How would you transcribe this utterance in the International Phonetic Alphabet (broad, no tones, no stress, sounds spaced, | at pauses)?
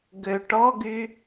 ɡ ø ʈ ɔ ɡ y